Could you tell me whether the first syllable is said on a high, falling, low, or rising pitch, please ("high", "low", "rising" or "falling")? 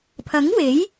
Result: rising